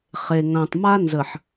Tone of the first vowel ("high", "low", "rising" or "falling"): low